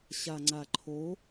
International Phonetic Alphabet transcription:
ɕ a ŋ͡ǀ a ǃʰ o

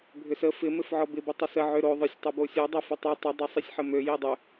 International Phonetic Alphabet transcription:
bʱ ʏ s ə f ɪ m ɪ f ʕ ɔ b ɪ b ɪ tˤ ə s ə ʕ ʏ ɾ o ðˤ œ sʲ tˤ ʏ b o sʲ o dˤ e f ʊ tˤ e tˤ ə dˤ e sˤ i sʲ ħ ə m ø j i dˤ ʏ

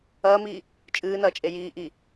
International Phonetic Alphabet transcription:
ɐː m iː | t͡ʃʼ ɨː n ɐː t͡ʃʼ e j iː ʔ i

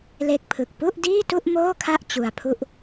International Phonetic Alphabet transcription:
l e˦˥ k̚ pʰ ɯ˨˩ k̚ p u˥˩ ʔ d iː˥˩ t u˥˩ ʔ m oː˥˩ kʰ a˥˩ ʔ t͡ɕ u˧ a̯ pʰ u˥˩ ʔ

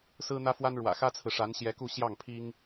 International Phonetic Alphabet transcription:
s ɹ̩˥ n̪ ä˥ f w a˥ n ɻ w ä̰˨˩ x ä˥ t͡sʰ ɹ̩˨ ʂ a˧˥ n ɕ j ɛ˧˥ k u˥˧ ɕ j ɑ˥˩ ŋ pʰ i˥ ŋ

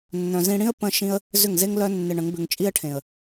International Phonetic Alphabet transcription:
nː œ̃˨ z ĩ˧ ɽ ĩ˦ ə̯ p ə̃˦ ʃ ĩ˦ ə̯ | z ʏ˦˨ ŋ z e˦ ŋ l œ˦ nː ɪ˧ ɳ ə̃˨˦ ŋ b ʏ˧ ŋ t͡ʃʼ i˦ ə̯ ʈʰ ẽ˨ ə̯

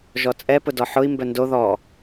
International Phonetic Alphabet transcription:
ʒ ɔ t͡sʼ ɛ p ʊ d ɔ ħ ʊ i̯ m b œ n d o ð ɔ

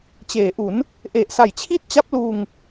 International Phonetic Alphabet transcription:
t͡ɕ eː˩˦ ʔ u˩˦ n | ʔ e˨˩ ʔ s a˨˩ j t͡ɕʰ i˥˩ t̚ t͡ɕ a˦˥ p̚ l uː˧ ŋ

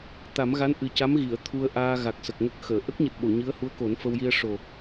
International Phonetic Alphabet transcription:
t̪ a˨˩˦ m ɣ a˧˥ n ʔ ɨ˨˩ c a˧˥ m ɣ i˨˩˨ ə̯ t̪ʰ u˧ ə̯ ʔ aː˧ ɣ a˨˩ k̚ s ə˨˩ k̚ ŋ ə˦˥ k̚ x əː˨˩˨ ʔ ə˦˥ k̚ ɲ ɨ˨˩ t̚ ɓ o˨˩˨ ɲ ɨ˧˥ ə̯ h u˧˥ ə̯ k o˨˩˦ n f ə˧ w j i˧ ə̯ ʂ o˨˩

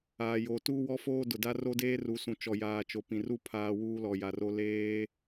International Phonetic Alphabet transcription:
aː˨ j oː˨ t uː˦ w ɔ˦ f oː˦ d ʊ˨ d a˦ r o˦ d eː˦ r u˨ s ũ˨ t͡ʃ ɔ˨ j aː˨ t͡ʃ o˨ p ĩ˨ r u˦ pʰ aː˨ w uː˦ l ɔ˨ j a˨ r o˦ l eː˦

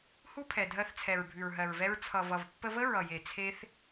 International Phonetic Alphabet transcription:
h u˦ pʰ ɛ˨ dʱ ɜ˧ θ t͡sʰ ɛ˨ ɹ bʱ ʉ˨ ɹ ɦ ɜ˨ ɹ v ɛ˧ ɹ t͡sʰ ʌ˨ v ʌ˨ v pː ə˧ v ə˦ ɹ ʌ˨ j e˨ t͡sʰ e˦ θ

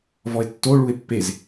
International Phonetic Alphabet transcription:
v ɔ e̯ tː o ɭ u e̯ pː e z

